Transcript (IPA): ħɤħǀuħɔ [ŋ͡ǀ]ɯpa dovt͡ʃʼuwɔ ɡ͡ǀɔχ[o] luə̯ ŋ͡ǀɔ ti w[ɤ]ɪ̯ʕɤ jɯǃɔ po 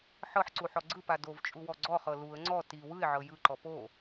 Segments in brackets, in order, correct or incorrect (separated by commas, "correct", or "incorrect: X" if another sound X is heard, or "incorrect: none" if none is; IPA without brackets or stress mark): incorrect: ɡ͡ǀ, incorrect: ɤ, incorrect: ɯ